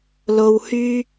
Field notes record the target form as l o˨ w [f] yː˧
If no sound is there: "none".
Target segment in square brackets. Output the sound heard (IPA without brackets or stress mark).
h